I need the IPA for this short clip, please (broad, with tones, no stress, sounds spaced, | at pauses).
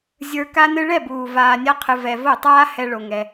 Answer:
zʲ ə˞˧ k a˦ n ɨ˦ ɭ ɛ˦˨ b uː˨ v aː˧ nʲ a˦ qʰ ɨ˧ v ɛ˧ v o˦˨ tˤ aː˦ h ɛ˧ ɭ o˨ ŋ ɛ˧